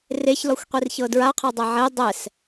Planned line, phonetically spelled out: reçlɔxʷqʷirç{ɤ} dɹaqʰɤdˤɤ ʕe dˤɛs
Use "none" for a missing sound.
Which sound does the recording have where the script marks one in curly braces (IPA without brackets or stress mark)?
ɤ